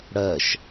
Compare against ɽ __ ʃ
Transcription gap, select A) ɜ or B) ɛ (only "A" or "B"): A